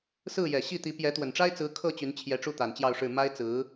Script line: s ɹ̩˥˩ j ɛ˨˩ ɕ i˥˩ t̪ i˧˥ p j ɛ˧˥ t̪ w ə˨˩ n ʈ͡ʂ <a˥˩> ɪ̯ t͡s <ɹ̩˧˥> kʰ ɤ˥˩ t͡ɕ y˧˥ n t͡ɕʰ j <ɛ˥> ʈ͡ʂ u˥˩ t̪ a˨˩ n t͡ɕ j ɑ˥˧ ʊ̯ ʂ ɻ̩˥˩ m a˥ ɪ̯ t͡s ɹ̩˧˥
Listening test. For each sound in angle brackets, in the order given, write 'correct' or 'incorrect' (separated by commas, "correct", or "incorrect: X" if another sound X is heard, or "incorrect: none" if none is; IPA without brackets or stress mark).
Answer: incorrect: a˥, correct, incorrect: ɛ˧˥